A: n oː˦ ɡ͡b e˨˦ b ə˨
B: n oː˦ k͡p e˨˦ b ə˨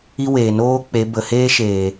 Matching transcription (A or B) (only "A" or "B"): B